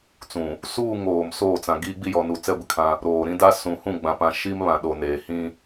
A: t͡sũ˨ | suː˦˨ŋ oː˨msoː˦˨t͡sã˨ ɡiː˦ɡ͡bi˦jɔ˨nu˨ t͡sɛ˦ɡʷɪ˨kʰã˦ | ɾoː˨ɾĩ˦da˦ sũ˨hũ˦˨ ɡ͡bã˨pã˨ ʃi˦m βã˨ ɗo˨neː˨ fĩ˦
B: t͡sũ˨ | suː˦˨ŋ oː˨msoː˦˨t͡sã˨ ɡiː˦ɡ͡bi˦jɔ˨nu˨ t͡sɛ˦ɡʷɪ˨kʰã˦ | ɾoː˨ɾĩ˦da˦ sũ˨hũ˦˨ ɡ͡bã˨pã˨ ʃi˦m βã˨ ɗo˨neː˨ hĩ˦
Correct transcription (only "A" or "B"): B